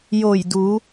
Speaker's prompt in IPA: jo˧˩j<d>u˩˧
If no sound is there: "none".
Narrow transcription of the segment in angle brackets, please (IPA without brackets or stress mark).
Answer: d